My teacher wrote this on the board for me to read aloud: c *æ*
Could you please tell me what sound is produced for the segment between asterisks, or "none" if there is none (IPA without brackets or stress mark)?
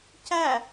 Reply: æ